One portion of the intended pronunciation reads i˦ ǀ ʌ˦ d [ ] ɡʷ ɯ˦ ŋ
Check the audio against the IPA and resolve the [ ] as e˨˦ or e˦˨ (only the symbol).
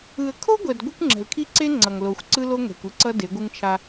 e˨˦